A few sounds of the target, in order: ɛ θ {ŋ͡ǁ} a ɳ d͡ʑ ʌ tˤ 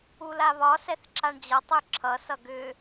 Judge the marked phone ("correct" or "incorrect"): incorrect